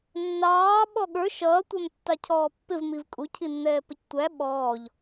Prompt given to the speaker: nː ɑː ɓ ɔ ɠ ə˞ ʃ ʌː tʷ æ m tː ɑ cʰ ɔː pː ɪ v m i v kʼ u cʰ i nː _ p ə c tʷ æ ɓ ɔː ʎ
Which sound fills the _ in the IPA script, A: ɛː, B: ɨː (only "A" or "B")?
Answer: A